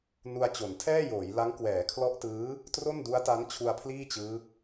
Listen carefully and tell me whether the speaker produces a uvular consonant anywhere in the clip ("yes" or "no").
no